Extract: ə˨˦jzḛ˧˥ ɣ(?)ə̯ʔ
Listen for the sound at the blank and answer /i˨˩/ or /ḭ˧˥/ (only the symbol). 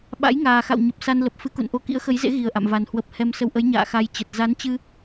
i˨˩